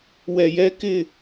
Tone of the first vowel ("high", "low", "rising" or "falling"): low